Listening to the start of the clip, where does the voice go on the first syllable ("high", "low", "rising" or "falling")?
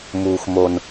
low